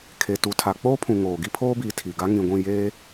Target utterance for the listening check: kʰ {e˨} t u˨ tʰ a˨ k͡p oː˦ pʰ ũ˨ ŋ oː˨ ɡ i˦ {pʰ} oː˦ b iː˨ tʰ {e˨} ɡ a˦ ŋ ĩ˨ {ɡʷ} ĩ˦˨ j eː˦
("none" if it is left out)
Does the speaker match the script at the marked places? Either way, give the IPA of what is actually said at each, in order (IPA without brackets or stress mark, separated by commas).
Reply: e˨, pʰ, i˨, ɡʷ